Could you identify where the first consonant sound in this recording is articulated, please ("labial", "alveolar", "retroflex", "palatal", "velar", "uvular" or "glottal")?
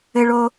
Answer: retroflex